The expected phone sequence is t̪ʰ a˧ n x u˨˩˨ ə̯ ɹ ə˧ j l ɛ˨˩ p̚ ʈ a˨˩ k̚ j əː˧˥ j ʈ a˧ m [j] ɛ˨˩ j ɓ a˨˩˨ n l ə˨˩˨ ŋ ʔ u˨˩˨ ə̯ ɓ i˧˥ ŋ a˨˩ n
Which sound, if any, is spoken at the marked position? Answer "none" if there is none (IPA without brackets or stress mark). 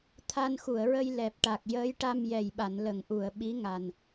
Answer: j